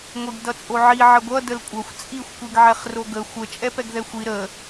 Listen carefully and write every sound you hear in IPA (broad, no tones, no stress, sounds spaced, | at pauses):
ŋʷ i ɡ d ʌ t͡sʼ o ʕ i ʕ ə ɡʷ ʌ d ə l kʷʼ ʌ xʷ t͡sʼ i xʷ kʷ i ɡ ʕ ɛ χ r o ɡ ə xʷ ə t͡ʃʼ ɛ p ɛ ɡ ð ɛ xʷ i ɾ ə